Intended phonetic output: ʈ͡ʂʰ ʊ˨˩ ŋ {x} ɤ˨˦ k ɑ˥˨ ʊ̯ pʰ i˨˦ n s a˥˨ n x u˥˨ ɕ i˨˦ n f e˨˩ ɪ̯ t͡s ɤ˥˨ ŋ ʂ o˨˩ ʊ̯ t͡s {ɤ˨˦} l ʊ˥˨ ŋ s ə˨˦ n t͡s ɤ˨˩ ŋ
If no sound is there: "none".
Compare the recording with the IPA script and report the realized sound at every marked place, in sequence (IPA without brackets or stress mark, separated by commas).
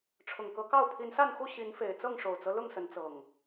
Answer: k, ɤ˦